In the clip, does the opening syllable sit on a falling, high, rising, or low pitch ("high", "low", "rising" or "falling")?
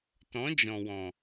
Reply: rising